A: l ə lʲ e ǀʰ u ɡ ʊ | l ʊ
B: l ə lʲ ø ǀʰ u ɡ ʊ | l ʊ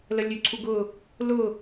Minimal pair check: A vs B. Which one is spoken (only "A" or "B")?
B